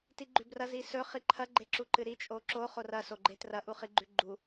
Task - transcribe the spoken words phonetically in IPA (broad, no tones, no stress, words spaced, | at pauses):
tiɡ͡ǃʉbrɐ zisɵ χiǃʰɐ ɡ͡ǃeǁuǃɨɾi t͡ʃʼoǁo χorɐ soɡ͡ǃetrɐ ʔuχiɡ͡ǃʉɡ͡ǃu